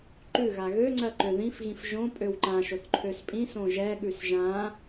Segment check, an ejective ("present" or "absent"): present